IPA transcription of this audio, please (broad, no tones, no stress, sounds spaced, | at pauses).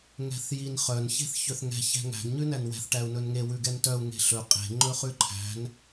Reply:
ŋ ɛ̤ θ j i n χ œ n ç e̤ θ ç ø θ ŋ ɛ̤ ç ɛ̤ ŋ æ̤ ɡ ɲ ʉ n æ n w ɛ̤ θ ʈ æ u̯ n ɵ n ŋ e w ʉ ɡ ɛ n t œ u̯ ŋ e̤ ɬ ɵ qʼ e̤ ŋ͡ǃ ɵ χ ʉ ǃʰ æ̤ n